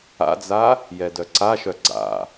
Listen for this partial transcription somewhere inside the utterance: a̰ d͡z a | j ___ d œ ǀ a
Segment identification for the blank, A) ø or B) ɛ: B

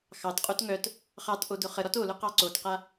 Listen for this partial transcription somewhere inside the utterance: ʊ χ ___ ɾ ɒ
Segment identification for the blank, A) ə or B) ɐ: A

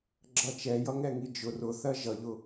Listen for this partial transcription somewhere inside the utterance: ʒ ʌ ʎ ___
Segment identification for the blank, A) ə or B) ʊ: B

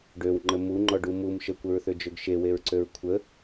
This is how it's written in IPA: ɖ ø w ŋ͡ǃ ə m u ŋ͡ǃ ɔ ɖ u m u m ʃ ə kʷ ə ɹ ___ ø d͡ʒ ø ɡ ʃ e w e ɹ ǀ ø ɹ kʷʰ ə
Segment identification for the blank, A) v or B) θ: B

